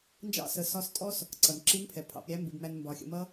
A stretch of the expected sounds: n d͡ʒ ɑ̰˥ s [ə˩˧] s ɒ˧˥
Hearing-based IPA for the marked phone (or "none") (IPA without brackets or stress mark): ə˩˧